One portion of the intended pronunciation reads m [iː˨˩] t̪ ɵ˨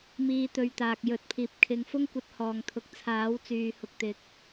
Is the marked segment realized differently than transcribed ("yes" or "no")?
yes